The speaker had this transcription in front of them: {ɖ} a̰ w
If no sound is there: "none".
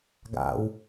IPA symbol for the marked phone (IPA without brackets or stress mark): ɡ